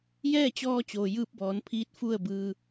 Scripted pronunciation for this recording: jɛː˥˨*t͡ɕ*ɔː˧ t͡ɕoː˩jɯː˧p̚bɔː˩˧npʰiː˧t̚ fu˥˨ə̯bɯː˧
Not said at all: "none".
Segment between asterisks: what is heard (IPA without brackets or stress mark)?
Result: t͡ɕ